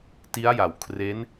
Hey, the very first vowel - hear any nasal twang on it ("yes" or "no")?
no